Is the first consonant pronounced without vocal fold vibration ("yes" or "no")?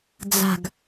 no